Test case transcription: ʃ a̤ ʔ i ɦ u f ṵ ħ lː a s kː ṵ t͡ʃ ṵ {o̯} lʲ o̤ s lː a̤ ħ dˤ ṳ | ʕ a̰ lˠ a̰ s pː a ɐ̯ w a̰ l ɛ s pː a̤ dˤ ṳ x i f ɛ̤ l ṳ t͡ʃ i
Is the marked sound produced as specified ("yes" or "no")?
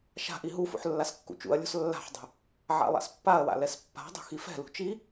no